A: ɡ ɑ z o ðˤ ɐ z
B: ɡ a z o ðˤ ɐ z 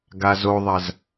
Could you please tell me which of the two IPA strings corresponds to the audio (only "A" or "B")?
B